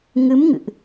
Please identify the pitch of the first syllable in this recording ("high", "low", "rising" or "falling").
rising